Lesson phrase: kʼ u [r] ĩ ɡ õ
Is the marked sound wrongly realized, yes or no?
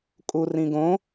no